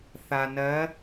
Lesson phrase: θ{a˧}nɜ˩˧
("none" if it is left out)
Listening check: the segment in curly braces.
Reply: a˩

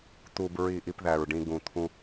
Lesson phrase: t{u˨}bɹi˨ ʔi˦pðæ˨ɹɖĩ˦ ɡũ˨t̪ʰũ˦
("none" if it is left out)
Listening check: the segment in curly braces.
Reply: u˨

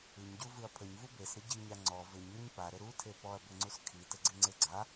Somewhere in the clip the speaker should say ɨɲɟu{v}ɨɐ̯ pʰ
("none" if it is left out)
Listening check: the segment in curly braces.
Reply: v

